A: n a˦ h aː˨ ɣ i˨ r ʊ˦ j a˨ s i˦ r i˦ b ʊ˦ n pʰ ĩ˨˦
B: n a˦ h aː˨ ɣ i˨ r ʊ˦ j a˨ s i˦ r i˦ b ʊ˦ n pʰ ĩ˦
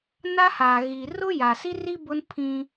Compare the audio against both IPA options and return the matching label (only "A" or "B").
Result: B